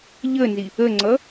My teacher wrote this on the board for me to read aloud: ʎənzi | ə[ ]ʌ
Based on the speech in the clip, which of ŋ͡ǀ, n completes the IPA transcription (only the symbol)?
ŋ͡ǀ